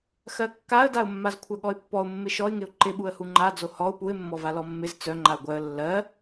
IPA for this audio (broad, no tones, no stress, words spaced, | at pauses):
xɜkːaə̯daʊ̯mːaz kʷʰœɠɔɪ̯pːɔʊ̯mːɪ ʃɔɪ̯ŋɪʊ̯ ǃɪɓuə̯hu ŋ͡ǃad͡zo hɔʊ̯ puɪ̯mːɔ valɔmːɪz t͡sœ ŋ͡ǃaʊ̯ɡʷœə̯ lːɜ